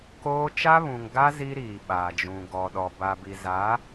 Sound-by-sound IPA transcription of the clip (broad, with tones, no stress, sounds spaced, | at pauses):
k oː˦ t͡ʃ a˦ β ũ˨ ŋ ɡ a˦ z i˦ ɾ iː˨ ɓ a˨ d͡ʒ ũ˨ ɡ ɔ˨ ɗ ɔ˨ b a˨ b i˨ z a˨˦